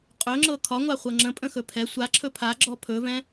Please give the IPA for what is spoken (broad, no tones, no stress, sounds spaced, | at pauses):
qʼ ɵ ŋ͡ǁ ɤ kʰ ɒ ŋʷ a χʷ ɤ ŋ͡ǁ ə̃ pʼ ə̃ x ɵ pʰ ɛ sʷ a ǁʰ ɵ pʰ a ɡ͡ǁ ɔ pʰ ɵ v ɛ̃